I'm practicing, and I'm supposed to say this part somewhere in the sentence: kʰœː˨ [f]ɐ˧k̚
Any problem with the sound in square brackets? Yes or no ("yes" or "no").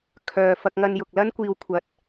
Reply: no